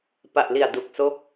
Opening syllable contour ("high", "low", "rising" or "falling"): low